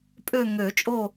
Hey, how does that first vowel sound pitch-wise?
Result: falling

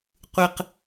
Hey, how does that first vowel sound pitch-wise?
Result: low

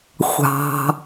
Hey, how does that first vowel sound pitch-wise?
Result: low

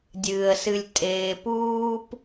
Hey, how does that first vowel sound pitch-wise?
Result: low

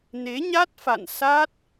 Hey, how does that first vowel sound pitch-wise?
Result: rising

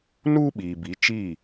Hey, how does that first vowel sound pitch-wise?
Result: high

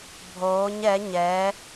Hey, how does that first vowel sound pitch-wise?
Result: rising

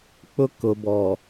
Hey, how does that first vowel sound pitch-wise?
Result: high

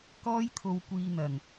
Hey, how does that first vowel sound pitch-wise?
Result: high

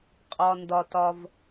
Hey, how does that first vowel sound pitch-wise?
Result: low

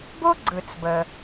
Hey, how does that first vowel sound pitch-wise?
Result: high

